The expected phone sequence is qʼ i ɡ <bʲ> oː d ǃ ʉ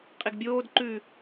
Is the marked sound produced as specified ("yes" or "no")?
yes